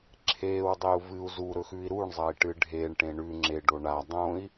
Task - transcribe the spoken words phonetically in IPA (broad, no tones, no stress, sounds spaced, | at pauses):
ǁʰ eː w dˤ e u̯ v ɨ u̯ z u ɾ ɵ x ʉ i̯ ɾ u ɳ zˤ ɐ i̯ ʈ ɨ ɖʱ e ɳ ʈ ẽ ɳ ʉ ŋ͡ǁ e ɖ o ɳ a dˤ õ i̯